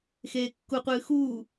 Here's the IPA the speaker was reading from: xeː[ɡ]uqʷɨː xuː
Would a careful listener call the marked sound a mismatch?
yes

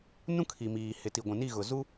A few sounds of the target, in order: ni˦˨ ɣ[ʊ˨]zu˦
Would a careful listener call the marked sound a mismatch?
no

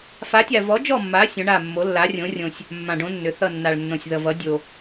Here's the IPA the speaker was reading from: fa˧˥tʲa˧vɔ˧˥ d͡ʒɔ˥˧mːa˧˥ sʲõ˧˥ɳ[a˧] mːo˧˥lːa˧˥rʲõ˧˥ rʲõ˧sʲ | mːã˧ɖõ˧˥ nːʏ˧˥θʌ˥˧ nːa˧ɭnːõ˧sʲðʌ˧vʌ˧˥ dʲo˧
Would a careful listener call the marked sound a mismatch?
yes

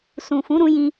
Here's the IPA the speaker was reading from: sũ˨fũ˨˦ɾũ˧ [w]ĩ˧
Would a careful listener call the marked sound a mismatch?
yes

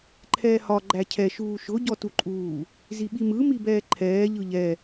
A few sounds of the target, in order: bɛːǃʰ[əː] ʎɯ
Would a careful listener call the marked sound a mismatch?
yes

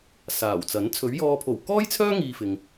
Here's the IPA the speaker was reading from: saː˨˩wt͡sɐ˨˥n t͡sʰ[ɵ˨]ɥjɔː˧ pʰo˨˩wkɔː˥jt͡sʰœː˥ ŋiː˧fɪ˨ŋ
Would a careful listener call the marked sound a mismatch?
yes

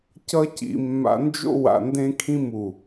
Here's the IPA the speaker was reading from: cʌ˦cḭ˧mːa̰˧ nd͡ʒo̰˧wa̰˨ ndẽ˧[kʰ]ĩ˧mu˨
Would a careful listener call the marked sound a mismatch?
no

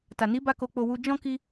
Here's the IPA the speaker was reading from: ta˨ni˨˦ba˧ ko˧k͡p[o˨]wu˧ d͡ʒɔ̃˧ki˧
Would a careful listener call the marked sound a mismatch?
yes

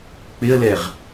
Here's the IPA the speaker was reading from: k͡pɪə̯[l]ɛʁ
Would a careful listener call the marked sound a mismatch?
no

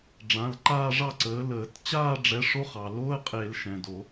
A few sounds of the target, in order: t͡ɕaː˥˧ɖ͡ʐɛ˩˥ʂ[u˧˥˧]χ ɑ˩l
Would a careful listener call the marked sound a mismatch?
yes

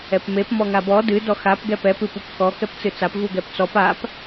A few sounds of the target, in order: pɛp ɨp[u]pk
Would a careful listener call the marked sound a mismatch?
no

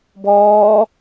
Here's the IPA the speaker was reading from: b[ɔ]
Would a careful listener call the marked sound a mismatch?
yes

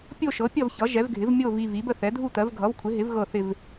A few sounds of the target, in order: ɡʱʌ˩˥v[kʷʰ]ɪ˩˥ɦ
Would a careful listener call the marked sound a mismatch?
no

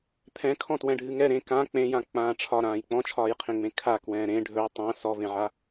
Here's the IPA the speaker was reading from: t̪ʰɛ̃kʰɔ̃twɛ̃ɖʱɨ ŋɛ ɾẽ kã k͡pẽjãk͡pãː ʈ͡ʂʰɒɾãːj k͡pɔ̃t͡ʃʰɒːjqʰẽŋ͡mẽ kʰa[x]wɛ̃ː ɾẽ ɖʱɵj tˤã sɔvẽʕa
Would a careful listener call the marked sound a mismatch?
yes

